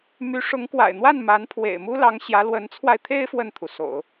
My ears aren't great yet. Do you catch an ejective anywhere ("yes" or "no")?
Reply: no